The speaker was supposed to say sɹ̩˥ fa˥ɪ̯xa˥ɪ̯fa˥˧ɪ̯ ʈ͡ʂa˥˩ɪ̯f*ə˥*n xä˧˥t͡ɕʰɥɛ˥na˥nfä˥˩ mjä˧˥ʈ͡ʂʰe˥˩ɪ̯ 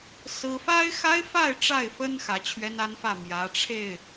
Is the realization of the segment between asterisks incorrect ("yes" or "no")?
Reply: no